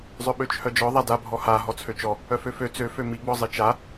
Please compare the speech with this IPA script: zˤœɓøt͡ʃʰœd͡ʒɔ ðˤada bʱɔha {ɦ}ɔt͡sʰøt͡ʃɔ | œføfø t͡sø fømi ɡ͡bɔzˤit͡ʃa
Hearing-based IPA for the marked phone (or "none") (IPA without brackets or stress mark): ɦ